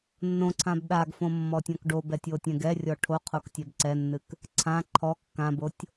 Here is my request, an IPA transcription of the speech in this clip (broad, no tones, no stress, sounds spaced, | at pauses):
nː õ ǀʰ ã b ɗ a ɡ f õ mː ɔ tʲ ɔ̃ k ɖ o b ɛ tʲ o tʲ ɛ̃ ɡ ɛ rʲ ɔ ʈʰ o qʰ o k tʲ ɛ b ǀ ɛ nː ɨ k | ǀʰ ã ǃʰ ɔ kː ã b o tʲ